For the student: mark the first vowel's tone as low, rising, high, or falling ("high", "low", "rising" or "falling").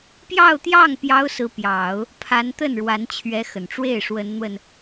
falling